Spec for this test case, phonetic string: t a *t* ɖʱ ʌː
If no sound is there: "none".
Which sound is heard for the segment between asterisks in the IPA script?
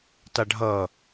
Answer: none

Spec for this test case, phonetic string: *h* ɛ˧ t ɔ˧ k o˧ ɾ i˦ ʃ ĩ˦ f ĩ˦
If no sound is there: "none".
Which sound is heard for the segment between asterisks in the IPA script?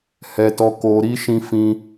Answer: h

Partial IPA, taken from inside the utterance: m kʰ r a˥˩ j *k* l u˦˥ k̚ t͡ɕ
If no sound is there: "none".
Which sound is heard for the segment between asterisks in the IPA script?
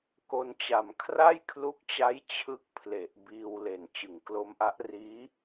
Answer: kʰ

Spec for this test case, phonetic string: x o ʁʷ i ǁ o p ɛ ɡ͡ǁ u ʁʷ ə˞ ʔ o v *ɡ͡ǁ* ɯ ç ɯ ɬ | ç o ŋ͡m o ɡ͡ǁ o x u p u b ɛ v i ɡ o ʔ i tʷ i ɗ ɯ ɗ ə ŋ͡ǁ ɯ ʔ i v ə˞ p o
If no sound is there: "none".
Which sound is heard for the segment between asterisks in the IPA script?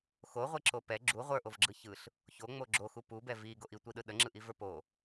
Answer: ɡ͡ǁ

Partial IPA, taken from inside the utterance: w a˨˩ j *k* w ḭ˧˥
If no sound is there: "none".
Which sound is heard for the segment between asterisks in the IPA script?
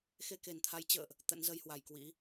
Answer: k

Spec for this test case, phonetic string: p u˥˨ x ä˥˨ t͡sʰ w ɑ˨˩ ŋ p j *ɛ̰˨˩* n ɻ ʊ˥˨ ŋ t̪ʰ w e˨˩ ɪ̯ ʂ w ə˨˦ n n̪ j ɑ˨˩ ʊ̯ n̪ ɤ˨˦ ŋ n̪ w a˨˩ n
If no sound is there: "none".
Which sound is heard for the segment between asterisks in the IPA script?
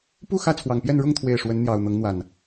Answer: ɛ˥˨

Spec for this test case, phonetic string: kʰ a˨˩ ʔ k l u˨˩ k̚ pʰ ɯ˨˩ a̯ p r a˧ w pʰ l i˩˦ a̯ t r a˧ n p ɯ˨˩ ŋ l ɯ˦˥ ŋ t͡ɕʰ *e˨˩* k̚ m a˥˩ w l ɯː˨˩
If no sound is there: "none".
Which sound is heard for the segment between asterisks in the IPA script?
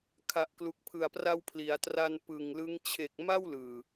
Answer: e˨˩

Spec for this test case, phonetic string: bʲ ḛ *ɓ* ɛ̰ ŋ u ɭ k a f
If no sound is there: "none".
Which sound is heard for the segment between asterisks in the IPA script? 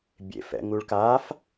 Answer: f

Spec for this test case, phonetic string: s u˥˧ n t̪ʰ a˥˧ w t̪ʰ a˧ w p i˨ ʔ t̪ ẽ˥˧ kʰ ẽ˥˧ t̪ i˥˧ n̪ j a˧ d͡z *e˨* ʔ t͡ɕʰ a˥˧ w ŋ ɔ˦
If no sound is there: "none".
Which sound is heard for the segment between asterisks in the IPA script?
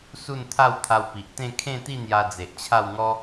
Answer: e˨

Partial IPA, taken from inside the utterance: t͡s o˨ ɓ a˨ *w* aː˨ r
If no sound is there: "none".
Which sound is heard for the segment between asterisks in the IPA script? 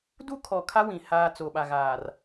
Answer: ɣ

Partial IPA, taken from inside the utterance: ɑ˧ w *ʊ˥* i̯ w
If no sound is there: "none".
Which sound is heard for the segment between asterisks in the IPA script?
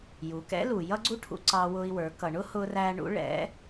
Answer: ʊ˧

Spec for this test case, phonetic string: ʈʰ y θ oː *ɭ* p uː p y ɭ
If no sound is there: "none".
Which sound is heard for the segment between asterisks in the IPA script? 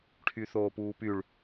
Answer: none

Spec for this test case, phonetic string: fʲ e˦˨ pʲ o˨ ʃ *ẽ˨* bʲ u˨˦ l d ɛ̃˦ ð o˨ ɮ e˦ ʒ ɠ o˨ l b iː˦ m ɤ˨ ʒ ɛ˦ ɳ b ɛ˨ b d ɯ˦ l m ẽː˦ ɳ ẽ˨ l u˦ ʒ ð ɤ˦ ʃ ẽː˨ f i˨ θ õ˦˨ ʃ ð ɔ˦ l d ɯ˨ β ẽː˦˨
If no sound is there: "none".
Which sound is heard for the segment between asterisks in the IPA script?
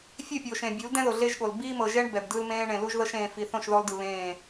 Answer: ẽ˨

